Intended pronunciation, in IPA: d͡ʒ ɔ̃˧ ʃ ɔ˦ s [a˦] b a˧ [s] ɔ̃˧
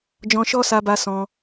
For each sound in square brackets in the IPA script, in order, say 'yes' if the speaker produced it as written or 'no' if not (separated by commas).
no, yes